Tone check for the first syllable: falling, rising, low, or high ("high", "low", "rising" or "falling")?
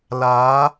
rising